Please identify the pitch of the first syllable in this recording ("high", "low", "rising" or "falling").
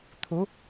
rising